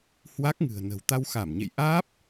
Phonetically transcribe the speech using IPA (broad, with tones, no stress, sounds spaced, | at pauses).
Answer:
h w a˦˥ k̚ ŋ ɨ̤˨˩ ə̯ n ə̤˨˩ w t̪ a˧ w x a˧˩ m ɲ ḛ˧˨ j ʔ aː˦˥ p̚